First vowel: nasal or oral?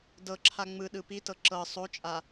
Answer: oral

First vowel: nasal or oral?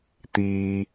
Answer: oral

